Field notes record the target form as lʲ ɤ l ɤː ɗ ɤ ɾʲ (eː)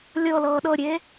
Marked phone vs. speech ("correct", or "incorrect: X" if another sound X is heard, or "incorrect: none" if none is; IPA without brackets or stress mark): correct